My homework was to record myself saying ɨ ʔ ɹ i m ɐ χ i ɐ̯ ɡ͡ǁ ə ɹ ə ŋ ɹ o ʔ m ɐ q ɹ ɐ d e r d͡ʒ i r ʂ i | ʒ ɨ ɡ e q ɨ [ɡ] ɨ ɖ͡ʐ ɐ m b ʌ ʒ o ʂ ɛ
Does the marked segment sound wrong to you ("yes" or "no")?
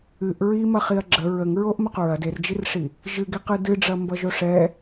yes